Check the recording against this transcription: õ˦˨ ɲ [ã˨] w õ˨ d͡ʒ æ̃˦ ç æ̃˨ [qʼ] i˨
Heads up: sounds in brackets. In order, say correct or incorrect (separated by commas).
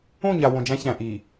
incorrect, incorrect